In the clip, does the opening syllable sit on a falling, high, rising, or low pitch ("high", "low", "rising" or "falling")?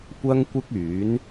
high